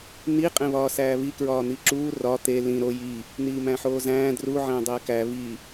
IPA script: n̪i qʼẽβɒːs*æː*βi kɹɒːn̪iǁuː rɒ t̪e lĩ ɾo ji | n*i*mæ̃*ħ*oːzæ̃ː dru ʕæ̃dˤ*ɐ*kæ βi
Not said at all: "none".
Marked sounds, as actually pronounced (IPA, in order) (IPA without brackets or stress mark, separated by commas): æː, iː, ħ, æ